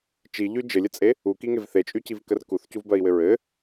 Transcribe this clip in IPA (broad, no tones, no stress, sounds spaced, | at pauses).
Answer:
t͡ʃ i ʎ y d͡ʒ ɘ lʲ ə t͡sʼ e | u k i ŋ e v θ e t͡ʃʼ y c i v k ə r k u θ c u v b ɜ i̯ w ɘ ɹ ɘ